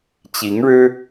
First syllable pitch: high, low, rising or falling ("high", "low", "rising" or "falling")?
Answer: rising